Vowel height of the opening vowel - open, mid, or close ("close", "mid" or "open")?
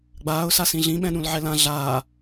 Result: open